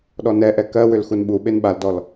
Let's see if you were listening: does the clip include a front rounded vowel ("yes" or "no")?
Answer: yes